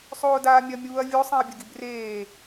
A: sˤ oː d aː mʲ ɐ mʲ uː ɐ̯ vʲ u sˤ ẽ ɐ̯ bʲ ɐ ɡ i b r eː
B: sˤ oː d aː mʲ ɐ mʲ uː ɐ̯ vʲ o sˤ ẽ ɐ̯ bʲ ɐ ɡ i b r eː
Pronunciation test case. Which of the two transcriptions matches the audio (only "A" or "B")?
B